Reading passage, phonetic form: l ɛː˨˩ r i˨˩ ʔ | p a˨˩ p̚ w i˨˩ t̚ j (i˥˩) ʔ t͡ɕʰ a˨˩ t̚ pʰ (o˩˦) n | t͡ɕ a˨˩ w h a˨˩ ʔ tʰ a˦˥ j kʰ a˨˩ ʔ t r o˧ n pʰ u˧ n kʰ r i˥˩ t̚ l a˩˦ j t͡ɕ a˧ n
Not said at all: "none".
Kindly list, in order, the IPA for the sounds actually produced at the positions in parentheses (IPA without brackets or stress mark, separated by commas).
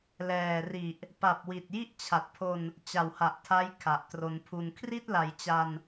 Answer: i˥˩, o˧